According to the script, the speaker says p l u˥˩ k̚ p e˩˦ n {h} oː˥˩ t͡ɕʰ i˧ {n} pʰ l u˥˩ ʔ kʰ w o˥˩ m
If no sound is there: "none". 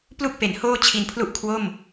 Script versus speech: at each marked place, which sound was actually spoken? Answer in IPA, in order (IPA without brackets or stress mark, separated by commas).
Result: h, n